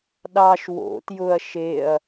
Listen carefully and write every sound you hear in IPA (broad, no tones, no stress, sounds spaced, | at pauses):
ɗ ɑ ʃ w o̰ t j ʊ ɐ̯ ʃ e ɐ̯